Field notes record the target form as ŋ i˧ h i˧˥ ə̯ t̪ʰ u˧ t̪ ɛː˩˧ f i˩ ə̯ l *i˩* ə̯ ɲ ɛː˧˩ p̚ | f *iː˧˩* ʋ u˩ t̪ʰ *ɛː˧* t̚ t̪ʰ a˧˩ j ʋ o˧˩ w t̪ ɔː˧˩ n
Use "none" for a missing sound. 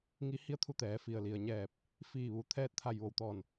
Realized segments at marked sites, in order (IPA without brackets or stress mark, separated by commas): i˩, iː˧˩, ɛː˧